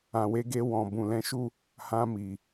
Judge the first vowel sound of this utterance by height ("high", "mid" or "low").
low